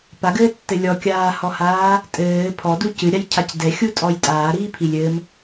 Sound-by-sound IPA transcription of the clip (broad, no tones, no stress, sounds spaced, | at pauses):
p a ɡ ɘː tː ɘ lʲ ɔ kʲ aː h ɔ h aː | tʼ ɘː pʰ ɔ d u c ɨ ɾʲ a j cʰ a c d ɛ xʲ u tʼ ɔ j tʼ aː ɾ iː pʰ i lʲ ɘ m